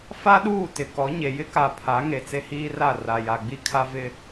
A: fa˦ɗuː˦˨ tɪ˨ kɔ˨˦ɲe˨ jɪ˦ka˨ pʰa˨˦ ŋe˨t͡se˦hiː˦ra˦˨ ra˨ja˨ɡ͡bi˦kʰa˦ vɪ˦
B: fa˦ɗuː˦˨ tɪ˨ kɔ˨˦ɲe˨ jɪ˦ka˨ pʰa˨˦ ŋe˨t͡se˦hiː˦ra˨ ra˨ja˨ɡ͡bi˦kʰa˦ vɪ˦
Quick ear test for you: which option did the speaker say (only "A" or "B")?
A